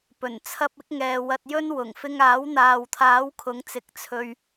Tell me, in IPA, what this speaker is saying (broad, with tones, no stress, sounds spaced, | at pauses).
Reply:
p ɵ˨˩ n t͡sʰ ɐ˧ p̚ ɪ˨˥ k̚ ŋ ɛː˨ w ɐ˧ t̚ j ɵ˥ n w ʊ˨˩ ŋ f ɪ˧ ŋ aː˨˥ w n̪ aː˨ w t̪ʰ aː˨˥ w kʰ ʊ˨˥ ŋ t͡s ɪ˨˥ k̚ t͡sʰ ɵ˨ ɥ